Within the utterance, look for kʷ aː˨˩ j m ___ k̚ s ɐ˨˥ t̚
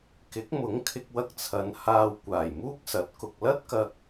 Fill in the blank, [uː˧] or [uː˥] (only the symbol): uː˥